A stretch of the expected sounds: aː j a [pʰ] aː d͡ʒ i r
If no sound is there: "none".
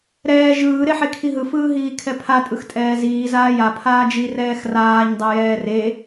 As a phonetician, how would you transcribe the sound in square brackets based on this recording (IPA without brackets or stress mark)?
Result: pʰ